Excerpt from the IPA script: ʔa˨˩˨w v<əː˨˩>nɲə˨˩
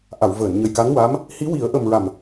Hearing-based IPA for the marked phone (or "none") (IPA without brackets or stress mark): əː˨˩˨